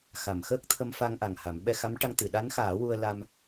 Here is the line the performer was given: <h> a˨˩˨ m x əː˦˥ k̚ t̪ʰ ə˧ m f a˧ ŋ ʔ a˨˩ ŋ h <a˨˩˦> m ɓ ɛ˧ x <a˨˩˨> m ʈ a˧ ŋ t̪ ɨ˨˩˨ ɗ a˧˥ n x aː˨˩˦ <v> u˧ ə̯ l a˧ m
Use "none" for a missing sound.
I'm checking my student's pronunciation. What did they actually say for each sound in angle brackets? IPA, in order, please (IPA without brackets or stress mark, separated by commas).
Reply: x, a˨˩˦, a˧˥, w